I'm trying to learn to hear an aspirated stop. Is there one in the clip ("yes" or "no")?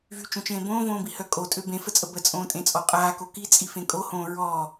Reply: no